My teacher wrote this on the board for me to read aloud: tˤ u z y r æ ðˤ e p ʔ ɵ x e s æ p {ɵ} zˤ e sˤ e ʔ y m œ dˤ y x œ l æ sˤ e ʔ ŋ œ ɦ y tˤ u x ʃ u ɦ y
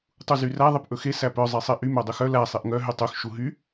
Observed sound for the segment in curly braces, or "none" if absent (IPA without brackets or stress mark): œ